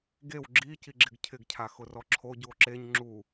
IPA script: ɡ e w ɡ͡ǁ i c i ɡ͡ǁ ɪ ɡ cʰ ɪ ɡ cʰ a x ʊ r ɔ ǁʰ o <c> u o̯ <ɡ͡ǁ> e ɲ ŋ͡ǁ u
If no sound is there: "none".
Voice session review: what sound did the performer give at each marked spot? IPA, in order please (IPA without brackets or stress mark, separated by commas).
ɟ, ǁ